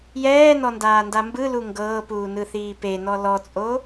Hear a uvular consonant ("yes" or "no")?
no